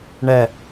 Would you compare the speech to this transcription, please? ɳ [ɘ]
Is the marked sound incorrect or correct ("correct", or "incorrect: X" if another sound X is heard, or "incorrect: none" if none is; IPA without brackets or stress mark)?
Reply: incorrect: ɛ